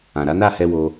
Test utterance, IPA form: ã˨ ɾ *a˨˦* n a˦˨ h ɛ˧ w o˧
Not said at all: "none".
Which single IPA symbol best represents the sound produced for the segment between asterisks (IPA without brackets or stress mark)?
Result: a˨˦